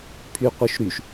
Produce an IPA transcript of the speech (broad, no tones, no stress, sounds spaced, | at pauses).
pʰ y qʷ œ ʃ ɾ y ʃ